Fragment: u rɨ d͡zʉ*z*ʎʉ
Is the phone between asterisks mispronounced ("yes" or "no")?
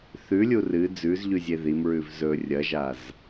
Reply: no